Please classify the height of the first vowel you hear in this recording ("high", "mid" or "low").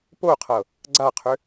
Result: mid